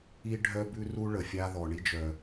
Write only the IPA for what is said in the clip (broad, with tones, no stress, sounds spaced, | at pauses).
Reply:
i˥ ɖʱ œ˥ b ʉ˥ r u˥ ɭ ə˩ fʲ a˥ ð ɔ˩ ɳ i˥ d͡ʒ œ˩